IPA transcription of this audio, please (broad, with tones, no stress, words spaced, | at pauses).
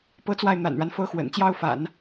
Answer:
pɤ˥t͡swa˥˩ɪ̯ n̪a̰˨˩nɻa˦n fɤ˥xwə̰˨˩n t͡ɕjɑ˥ʊ̯fa̰˨˩˦n